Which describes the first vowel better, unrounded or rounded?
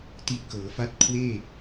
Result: unrounded